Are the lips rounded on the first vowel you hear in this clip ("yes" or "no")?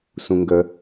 yes